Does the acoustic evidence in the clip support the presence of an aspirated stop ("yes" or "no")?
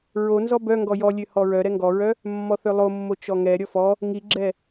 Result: no